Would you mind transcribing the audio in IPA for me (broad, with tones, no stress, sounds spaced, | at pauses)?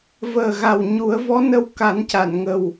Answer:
v əː˨˩ ɣ a˨˩ w ɲ u˨˩˦ ə̯ v ɔ˧˥ n ə˧ w k a˨˩˦ n c a˨˩˨ n ŋ ə˨˩ w